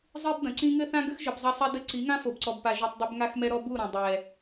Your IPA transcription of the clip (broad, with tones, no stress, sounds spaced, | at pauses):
zˤ i˦ b d ɐ̃˨ ǀ ĩ˦ ŋ ɘ˦ θ ã˦ ɡ ɘ˦ x ʒ ɨ˨ b zˤ ɐ˧ sˤ ɛ˧ d ɘ˧ ǀ i˨˦ ŋ ã˦ f o˨ b ǀ ɔ˨ b p a˨ ʒ u˨ tˤ dˤ ɛ˧ b ŋ a˧ x m ɛ˧ ɾ ɔ˧ b u˦˨ ɾ ɐ̃˨ dˤ ɛ˨